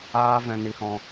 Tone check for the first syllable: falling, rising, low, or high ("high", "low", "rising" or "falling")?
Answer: high